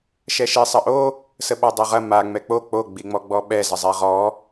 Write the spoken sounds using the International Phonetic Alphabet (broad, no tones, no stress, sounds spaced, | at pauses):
ʃ ɛ ʃ i sˤ ɐ ʔ o | s ə ɓ a dˤ o ʁ ɐ m a ŋ͡m ɛ k͡p o k͡p o ɡ͡b i ŋ͡m ɔ ɡ͡b ɔ ɓ ɛ z ə zˤ ɛ ʁ ɔ